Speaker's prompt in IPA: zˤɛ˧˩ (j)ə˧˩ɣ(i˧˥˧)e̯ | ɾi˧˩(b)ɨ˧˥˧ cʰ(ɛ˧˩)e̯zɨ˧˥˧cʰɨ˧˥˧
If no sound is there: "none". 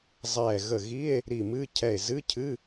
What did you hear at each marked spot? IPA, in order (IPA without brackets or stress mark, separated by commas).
ɣ, i˧˥˧, m, ɛ˧˩